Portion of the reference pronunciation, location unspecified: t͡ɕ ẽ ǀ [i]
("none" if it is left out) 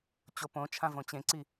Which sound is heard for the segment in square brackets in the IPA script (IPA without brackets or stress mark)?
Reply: i